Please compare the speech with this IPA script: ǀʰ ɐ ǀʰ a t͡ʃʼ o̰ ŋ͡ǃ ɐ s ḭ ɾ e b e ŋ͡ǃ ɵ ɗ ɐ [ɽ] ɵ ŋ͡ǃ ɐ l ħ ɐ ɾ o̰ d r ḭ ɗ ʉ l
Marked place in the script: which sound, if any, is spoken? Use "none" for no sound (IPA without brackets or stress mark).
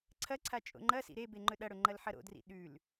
ɽ